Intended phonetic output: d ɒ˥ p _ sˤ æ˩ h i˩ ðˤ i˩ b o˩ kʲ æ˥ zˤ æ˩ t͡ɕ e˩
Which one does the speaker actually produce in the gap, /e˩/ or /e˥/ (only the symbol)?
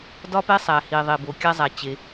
e˥